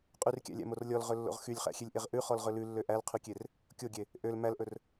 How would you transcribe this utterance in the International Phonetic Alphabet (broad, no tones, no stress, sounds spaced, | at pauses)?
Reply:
qʼ y r kʲ æ̰ lʲ æ̰ m o r lʲ ɔ l ʁ ɵ lː o̰ ʁ x y lʲ χ æ̰ xʲ e lʲ ʔ e ʁ ʔ ʉ χ ɔ l ʁ ɵ l ʉ lː ø ʔ æ l qʰ y kʲ e r | kʲ o ɡʲ e | ʔ ø l m æ l ʔ ɵ r